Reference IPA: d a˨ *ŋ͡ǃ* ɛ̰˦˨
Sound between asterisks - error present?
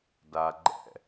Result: yes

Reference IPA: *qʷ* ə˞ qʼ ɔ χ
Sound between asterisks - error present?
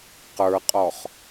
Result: yes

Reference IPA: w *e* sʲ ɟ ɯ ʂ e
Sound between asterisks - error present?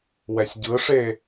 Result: yes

